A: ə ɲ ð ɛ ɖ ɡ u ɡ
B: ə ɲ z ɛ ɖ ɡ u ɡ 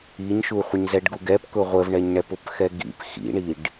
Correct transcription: B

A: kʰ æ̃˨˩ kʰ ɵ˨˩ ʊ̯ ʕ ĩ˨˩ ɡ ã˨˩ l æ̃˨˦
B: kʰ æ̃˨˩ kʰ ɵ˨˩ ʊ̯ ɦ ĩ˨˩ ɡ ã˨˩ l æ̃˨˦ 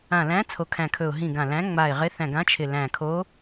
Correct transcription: B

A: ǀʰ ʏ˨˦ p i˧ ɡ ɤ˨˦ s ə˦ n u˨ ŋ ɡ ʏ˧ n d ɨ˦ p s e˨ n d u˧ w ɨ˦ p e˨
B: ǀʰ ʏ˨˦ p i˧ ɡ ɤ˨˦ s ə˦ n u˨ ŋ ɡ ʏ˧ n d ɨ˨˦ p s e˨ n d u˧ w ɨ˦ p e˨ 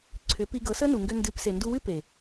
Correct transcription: B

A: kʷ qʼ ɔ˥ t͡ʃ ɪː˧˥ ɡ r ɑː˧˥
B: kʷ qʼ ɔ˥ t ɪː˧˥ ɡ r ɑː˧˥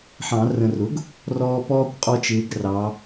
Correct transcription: A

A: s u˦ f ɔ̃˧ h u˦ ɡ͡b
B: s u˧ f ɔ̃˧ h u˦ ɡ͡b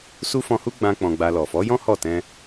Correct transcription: A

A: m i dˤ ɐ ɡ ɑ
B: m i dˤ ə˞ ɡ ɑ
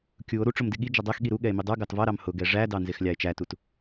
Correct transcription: B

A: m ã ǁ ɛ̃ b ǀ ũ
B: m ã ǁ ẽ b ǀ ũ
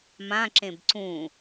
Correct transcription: B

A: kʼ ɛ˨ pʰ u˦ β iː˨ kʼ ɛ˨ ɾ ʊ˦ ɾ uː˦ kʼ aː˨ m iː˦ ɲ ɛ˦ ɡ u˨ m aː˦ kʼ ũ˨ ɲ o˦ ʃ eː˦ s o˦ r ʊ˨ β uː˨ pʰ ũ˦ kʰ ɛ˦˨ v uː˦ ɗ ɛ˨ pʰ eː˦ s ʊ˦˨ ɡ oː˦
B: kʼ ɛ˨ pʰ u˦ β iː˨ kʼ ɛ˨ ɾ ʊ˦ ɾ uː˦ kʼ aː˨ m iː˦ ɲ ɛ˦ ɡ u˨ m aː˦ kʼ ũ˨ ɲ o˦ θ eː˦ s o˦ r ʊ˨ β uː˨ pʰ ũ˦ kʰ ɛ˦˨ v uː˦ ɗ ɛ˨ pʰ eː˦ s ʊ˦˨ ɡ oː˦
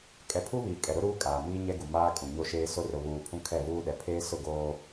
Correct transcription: A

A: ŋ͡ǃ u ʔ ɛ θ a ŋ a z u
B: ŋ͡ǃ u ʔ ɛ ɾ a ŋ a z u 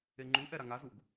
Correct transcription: B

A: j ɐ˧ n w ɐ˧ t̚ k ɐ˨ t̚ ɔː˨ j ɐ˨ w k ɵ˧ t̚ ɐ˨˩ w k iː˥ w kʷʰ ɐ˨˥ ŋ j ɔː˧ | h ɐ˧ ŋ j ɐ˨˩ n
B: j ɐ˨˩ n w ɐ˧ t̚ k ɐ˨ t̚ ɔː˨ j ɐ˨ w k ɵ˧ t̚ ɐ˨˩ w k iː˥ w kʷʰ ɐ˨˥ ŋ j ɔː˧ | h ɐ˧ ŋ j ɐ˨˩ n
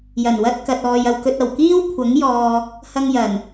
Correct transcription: B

